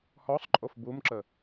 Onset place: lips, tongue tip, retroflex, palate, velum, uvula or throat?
throat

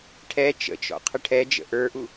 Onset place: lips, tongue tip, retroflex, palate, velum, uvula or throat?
retroflex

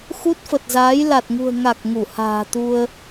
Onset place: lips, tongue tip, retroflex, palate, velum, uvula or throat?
velum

